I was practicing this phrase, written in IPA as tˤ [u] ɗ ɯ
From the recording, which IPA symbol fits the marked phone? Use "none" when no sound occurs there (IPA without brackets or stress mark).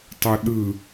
u